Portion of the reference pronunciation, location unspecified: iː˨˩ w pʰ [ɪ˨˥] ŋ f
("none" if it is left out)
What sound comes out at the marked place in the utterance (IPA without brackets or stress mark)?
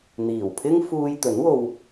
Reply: ɪ˥